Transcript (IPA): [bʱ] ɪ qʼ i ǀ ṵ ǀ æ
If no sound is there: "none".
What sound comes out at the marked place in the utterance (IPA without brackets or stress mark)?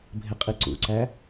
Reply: bʱ